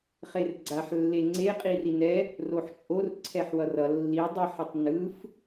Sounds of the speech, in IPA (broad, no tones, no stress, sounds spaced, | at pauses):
χ e r ɡ͡ǀ a ħ lː e ŋ͡ǀ e qʼ i r i n ɛ | r o ħ t͡ʃʼ o r ǀʰ ɛ ħ w ʌ r ʌ lː i dˤ i ħ ʌ tˤ n ɯ f